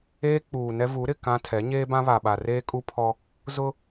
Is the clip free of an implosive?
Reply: no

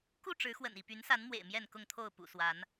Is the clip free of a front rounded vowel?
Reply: no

